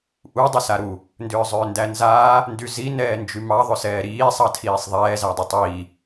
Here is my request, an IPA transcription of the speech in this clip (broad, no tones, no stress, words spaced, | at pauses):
ʔu dˤʏsaɾu | ndʏːzˤʏːndænzaː | ndyzi nɛːnd͡ʒymɑ ðˤʏsɛːɾiː sˤɑtʰiːsˤðˤɛː zadˤʏtˤiː